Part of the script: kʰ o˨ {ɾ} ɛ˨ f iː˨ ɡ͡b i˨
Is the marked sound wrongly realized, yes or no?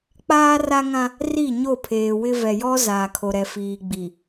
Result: no